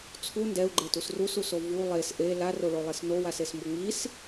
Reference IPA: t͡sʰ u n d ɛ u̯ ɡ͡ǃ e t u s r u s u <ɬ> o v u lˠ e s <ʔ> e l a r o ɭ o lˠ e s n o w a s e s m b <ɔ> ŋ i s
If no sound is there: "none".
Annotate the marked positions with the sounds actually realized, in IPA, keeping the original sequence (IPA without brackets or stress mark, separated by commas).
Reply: s, ʔ, o